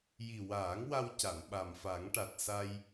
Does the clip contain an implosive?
yes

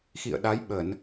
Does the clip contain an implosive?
yes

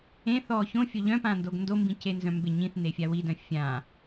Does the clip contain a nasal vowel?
yes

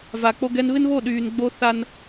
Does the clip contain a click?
no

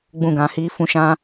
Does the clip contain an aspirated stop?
no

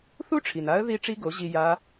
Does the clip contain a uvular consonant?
no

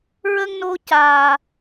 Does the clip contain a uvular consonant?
no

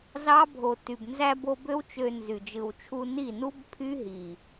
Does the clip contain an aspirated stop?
yes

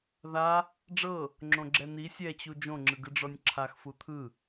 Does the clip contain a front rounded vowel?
no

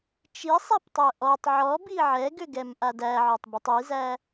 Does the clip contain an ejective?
no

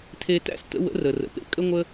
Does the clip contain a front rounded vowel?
no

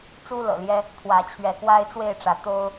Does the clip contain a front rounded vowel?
no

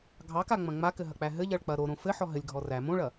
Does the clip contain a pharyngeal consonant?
yes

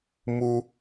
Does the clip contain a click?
no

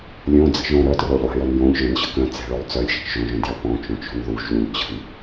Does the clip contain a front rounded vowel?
yes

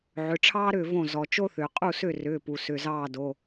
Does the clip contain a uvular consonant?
yes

